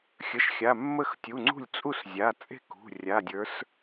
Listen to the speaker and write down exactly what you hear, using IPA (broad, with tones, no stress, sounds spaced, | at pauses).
xʲ ə˩˧˩ ʃ xʲ a˩˧˩ mː ə˥˩ x tʲ u˩˧˩ ŋ͡ǀ ṳ˥˩ lʲ t͡sʼ u˥˩ s zʲ a˩˧˩ t͡sʼ e̤˥˩ k ṳ˩˧˩ rʲ a˩˧˩ dʲ ə˞˨˦ s